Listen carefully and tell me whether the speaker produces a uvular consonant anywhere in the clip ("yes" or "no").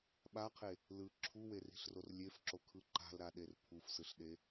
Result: yes